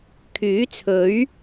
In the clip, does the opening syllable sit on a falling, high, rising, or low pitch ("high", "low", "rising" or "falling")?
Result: rising